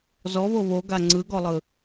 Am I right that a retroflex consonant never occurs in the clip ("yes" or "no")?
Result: yes